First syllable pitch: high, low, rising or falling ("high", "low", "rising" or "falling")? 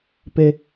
low